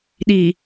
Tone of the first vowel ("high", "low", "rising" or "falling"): low